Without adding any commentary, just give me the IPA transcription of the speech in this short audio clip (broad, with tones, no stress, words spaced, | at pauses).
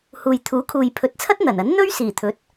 huː˨jt̪ʰuː˨˥kʰuː˨j pʰɵ˨˥t̚t͡sʰɐ˥t̚n̪ɐ˨˩nɐ˨˥n n̪ɵ˥ɥsiː˨˩t̪ʰɵ˨˥t̚